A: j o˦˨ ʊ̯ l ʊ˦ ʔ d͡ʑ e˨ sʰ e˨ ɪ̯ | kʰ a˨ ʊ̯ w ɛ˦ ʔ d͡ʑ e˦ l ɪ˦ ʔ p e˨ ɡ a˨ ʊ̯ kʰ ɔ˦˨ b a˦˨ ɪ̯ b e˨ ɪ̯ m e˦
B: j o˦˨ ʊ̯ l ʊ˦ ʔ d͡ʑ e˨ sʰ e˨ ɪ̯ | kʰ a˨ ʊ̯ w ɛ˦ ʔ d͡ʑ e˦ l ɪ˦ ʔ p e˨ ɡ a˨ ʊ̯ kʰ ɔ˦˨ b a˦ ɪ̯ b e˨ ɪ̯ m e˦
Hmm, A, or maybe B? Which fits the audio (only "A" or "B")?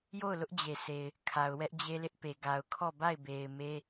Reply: A